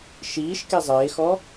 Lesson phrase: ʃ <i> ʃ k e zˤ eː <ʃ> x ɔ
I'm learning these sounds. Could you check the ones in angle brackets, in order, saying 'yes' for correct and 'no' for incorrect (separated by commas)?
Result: no, no